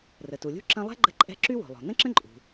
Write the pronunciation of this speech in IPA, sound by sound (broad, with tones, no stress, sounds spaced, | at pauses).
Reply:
r ə˩ t u˩ lʲ ṳ˥ ǁ ɐ̃˥ lˠ ɛ̤˥ ɡ͡ǃ ə̤˥ ǃʼ ɛ̤˥ ǁ y˥ w o̤˩ lˠ o̤˩ n ə̃˥ ǁ ə̃˥ ǃʼ ṳ˩